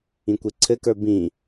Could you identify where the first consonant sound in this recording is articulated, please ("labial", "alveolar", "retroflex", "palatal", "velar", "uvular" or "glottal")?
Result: velar